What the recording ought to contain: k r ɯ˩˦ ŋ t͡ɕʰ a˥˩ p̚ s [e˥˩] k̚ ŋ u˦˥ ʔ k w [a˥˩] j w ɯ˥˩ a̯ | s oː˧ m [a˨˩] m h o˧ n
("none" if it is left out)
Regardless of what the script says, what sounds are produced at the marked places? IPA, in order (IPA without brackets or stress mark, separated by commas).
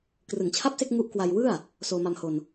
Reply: e˥˩, a˧, a˧